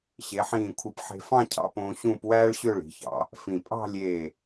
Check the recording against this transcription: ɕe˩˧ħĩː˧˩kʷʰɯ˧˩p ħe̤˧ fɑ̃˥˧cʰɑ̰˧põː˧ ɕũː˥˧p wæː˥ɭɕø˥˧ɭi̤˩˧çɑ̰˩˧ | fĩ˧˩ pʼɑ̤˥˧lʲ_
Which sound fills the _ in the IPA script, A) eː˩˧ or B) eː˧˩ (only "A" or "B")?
B